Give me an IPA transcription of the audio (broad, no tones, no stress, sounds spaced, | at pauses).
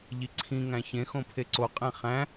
ʎ i ǀʰ ĩ ŋ æ̃ ç ẽ x õ pʰ e ǀ o qʼ ẽ χ æ̃